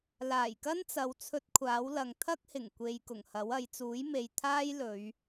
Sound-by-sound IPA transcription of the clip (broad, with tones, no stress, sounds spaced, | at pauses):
l aː˨˩ j k ɐ˥ n t͡s ɐ˨ w t͡sʰ ɵ˧ t̚ kʷʰ aː˨˥ w l ɐ˨ ŋ t̪ʰ ɐ˥ k̚ h ɪ˨˩ ŋ kʷ e˨ j k ʊ˨˩ ŋ h ɐ˨˥ w ɐ˨˧ j t͡s uː˨˥ j m e˨ j t̪ʰ aː˥ j l ɵ˨˧ ɥ